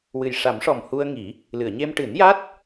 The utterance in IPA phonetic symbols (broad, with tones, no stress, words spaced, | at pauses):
wɨ˨˩jʂa˨˩˦mʂɔ˨˩mhu˧ə̯ ŋi˨˩˦ | lɨ˨˩˨ə̯ ɲe˧m ʈɨ˨˩˦nja˦˥t̚